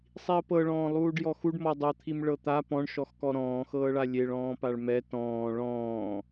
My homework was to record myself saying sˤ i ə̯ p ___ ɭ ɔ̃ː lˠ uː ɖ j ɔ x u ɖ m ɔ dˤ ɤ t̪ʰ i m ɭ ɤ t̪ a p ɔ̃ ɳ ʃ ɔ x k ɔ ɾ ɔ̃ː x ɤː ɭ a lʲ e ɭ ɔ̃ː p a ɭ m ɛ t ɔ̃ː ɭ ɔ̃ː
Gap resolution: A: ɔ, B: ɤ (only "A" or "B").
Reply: B